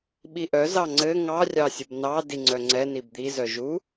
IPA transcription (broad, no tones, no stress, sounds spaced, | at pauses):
ɓ i ʔ œ z ɑ ŋ͡ǀ ɘ ŋ ɑ rʲ ɑ sʲ ɘ b n ɑ d i ŋ͡ǀ œ ŋ͡ǀ ɛ n i b d̪ i z œ ʒ u